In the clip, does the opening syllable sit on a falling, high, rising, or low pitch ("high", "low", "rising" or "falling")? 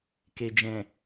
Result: low